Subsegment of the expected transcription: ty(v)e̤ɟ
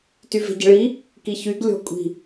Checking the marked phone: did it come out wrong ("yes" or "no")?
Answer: no